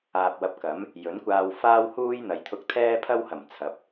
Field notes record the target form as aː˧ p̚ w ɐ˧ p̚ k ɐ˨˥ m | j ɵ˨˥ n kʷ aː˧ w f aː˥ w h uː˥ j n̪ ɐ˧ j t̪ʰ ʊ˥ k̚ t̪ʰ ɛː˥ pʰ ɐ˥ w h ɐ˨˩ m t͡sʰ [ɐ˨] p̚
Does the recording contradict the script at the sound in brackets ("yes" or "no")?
yes